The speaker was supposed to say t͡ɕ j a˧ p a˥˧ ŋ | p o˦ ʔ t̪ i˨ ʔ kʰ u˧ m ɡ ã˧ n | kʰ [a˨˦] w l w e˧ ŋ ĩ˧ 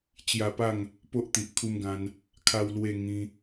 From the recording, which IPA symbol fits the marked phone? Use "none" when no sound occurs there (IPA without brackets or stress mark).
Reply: a˧